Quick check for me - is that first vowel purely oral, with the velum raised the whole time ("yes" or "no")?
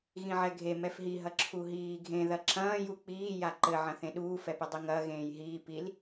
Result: no